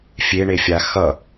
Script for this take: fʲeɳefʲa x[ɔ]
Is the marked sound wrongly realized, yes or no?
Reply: yes